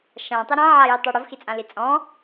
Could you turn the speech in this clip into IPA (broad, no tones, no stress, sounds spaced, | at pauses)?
ʃ ã tˤ ɪ ɾ ã ʕ a j u tˤ o ɽ ʊ v x i t͡sʼ ã l i t͡sʼ ɔ̃